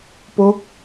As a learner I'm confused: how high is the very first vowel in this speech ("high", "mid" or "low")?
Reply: mid